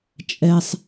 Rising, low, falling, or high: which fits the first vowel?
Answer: low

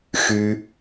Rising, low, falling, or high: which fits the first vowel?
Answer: high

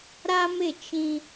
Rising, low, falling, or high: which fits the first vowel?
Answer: high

